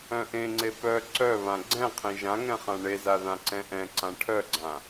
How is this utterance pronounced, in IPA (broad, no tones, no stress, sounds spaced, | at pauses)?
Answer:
œ̃ ʔ ẽ ŋ͡ǀ e p œ ǀ œ β ã ɡ͡ǀ ɛ̃ qʰ ẽ ʒ ã ŋ ɛ̃ χ ã ɳ e z a ð ã ǀ ɛ̃ ʔ ɛ̃ ǀ ã ʈʰ œ ɡ͡ǀ ã